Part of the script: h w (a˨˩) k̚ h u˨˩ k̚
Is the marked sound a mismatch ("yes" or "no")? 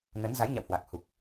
no